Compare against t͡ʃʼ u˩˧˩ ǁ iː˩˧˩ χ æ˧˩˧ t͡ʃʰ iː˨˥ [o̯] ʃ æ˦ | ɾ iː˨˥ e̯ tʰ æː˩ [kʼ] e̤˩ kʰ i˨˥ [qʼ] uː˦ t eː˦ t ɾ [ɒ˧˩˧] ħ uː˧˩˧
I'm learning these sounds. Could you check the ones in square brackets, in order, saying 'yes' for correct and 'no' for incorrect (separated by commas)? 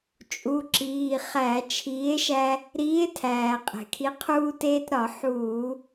no, no, no, yes